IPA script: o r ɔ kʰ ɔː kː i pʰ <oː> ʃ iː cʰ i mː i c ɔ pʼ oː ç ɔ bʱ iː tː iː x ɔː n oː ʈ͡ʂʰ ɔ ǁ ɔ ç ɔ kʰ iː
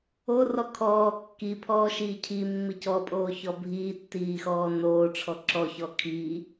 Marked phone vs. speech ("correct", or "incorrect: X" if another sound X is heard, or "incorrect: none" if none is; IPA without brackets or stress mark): incorrect: ɔː